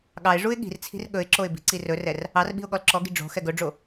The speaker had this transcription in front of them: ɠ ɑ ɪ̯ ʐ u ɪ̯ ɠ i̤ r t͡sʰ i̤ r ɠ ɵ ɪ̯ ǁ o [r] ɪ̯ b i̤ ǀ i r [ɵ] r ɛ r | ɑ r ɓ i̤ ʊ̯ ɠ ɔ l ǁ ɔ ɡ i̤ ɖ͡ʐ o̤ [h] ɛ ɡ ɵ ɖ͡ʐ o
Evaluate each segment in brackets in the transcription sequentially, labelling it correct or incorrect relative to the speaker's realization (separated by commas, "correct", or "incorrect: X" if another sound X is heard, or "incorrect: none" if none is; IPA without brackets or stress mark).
incorrect: none, correct, incorrect: x